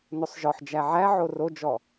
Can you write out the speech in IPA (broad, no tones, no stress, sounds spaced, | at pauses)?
n o sˤ ʒ ɔ ħ d͡ʒ æ ʕ æ ʕ o r o d͡ʒ ɔ